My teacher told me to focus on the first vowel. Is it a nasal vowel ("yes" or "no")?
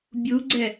no